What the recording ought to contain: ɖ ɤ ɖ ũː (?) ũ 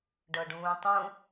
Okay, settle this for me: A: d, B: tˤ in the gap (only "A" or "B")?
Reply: B